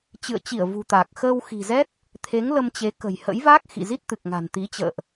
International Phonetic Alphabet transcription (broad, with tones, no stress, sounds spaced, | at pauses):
t͡ɕ ɨ̰˧˨ ə̯ t͡ɕ i˧˩ ə̯ v ṳ˨˩ t̪ aː˨˩ k̚ x əː˧ w x i̤˨˩ z ɛ˦˥ t̚ | t̪ʰ e˨˦ ŋ l ə˧ m t͡ɕ e˨˦ k ə̤˨˩ j h ə̰˧˥ j v aː˦˥ k̚ x ḭ˧˨ z i˦˥ t̚ t̪ ɨ˨˩ k̚ ŋ a̤˨˩ n t̪ i˨˦ t͡ɕ ə̰ː˧˨ ʔ